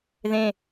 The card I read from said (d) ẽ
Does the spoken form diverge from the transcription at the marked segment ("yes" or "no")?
yes